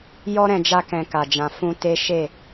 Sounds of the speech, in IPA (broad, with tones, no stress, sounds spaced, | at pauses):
j ɔ˦ ɾ ɛ̃˧ d͡ʒ a˧ k ɛ̃˨ k a˨ d͡ʒ ã˨ f ũ˧ t e˦ ʃ e˦˨